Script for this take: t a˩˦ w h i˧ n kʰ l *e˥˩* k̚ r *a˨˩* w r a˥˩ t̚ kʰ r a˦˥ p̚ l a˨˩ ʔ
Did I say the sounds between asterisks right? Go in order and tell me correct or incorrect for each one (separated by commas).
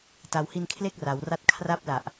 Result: correct, incorrect